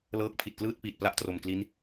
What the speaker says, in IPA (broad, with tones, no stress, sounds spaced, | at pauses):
l ɤː˦˥ k̚ pʰ i˨˩ t̚ k l ɯː˥˩ t̚ p iː˨˩ t̚ p l a˦˥ ʔ t r o˨˩ m k l i˦˥ n